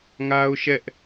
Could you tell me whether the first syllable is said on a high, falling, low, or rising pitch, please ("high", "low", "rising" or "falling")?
high